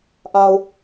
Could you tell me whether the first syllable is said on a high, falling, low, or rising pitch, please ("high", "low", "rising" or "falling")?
low